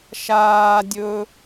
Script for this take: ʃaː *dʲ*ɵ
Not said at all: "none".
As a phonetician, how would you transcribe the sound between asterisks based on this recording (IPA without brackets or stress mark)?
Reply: dʲ